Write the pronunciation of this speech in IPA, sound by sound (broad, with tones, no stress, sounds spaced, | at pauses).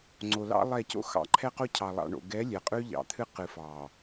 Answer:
ŋ͡ǀ o˨ l ɑ̰˦ lˠ ɛ˦˨ c o̰˦ x ɑ̰˨ ǃʰ ɛ˦ q o˦ cʰ ɑ˨ lˠ ɑ̰˨ ɳ o̰˨ ɡ ɛ˨˦ lʲ ɛ˨ qʼ ʉ˦ ʎ ɑ̰˨ t̪ʰ ɨ˦ q ɨ˨ f ɑ˨